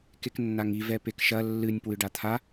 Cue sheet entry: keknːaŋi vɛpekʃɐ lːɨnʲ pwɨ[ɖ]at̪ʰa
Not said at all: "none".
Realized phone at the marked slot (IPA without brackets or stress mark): ɖ